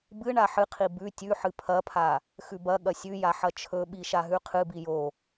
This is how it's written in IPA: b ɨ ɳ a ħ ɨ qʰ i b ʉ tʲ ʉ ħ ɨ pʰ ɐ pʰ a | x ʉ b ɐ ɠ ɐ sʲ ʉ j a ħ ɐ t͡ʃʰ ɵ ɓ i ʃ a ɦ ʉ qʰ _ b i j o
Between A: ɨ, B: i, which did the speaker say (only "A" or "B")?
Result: A